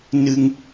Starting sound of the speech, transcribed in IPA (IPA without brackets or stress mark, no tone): n